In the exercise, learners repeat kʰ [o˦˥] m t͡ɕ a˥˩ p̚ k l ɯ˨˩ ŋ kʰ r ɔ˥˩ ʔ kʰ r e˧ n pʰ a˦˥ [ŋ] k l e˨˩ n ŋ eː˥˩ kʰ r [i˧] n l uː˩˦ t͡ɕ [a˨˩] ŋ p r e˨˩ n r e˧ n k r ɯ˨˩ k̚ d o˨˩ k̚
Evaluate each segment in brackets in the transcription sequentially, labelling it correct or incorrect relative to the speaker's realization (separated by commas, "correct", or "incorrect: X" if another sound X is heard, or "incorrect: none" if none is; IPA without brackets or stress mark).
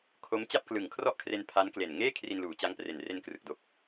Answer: correct, incorrect: n, correct, incorrect: a˦˥